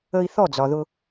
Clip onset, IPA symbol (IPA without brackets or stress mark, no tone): ə